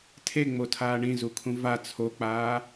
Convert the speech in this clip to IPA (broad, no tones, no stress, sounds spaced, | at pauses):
tʰ e ŋ͡m o tʰ aː ɳ ĩ z u kʰ ũ v a t͡sʰ o k͡p aː